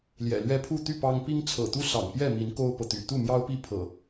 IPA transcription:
l j ɛ̰˨˩ l ɥ ɛ˦ pʰ u˥˨ t̪ y˥˨ p ɑ˦ ŋ p i˦ ŋ t͡sʰ ɤ̰˨˩ t̪ u˦ s ɑ̰˨˩ ŋ p j ɛ˥˨ m i˨˦ n k o˦ ʊ̯ p ɤ˨ t̪ y̰˨˩ t̪ u˥˨ m j ɑ˦ ʊ̯ p i˥˨ pʰ ɤ̰˨˩

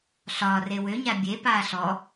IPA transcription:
ɬ ɒː r e w ø ɲ a bʲ e p aː ɬ ɔ

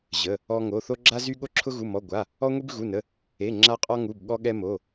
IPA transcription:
ʑ ə˧˥˧ | ɔ˥ ŋ o˧˥˧ θ o˥ ɡ͡ǁ a˥ z y˥ ɠ o˥ ǁʰ ʊ˥ ɣ u˧˥˧ m ɔ˧˥˧ ɡʷ a˧˥˧ | ɔ˥ ŋʷ i˥ b ɣ u˧˥˧ n ə˧˥˧ | e˧˥˧ ŋ͡ǁ a˥ qʼ ɔ˥ ŋ u˧˥˧ b ɠ ɔ˥ ɠ ɛ˥ m o˧˥˧

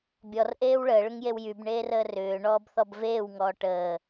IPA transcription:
bʲ ɔ r ʔ eː w ɭ əː ɭ ʏ ŋ j e w j y b ɳ eː r əː r ʏː ɳ ɔː b θ ɔ b v eː w ŋ ɔː ʈ əː

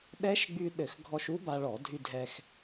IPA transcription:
ɗ ɛ˦˥ ʃ ɡ͡b y˧ ɗ ɘ˧˩˧ x ɡʱ ɔ˧ ʃ u˦˥ b a˧ ɭ ɔ˧˩˧ dʱ y˧ dʱ ɛ˧ x

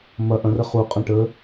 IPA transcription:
m ɐ ʔ ɐ̃ r ə χ u qʼ ɐ̃ ʈ ə

